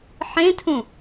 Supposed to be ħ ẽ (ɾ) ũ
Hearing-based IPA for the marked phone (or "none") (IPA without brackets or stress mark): tʰ